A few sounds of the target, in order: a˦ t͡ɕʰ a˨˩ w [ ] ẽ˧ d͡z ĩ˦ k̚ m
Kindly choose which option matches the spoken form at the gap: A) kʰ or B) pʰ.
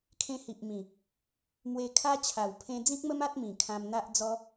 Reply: B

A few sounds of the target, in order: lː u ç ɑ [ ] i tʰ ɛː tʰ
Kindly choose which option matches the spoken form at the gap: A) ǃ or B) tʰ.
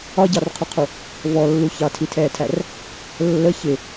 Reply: B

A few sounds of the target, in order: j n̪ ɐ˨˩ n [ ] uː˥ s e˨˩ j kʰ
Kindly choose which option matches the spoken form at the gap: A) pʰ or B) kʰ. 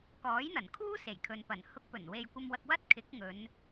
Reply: B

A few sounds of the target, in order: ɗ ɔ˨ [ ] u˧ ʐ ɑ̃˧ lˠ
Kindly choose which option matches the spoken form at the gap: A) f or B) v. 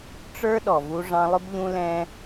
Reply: B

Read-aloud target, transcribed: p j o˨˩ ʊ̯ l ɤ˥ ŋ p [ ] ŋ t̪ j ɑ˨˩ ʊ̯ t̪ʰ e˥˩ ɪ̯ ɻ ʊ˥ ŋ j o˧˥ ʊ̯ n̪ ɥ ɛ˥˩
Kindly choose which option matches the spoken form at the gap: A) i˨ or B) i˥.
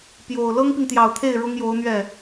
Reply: A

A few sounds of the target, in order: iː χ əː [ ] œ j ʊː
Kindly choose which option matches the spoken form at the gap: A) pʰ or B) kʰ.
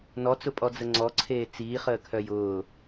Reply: B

